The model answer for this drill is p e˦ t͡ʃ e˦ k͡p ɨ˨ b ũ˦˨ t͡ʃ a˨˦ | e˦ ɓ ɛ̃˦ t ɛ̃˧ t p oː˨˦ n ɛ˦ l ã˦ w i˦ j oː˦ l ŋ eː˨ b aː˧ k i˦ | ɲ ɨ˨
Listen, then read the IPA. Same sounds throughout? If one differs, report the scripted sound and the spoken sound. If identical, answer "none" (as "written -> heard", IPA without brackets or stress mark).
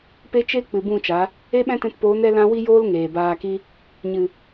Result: none